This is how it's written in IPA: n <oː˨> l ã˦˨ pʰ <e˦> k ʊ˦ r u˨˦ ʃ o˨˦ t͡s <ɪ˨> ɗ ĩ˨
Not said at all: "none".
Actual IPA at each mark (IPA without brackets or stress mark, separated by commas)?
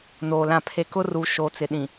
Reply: oː˨, e˦, ɪ˨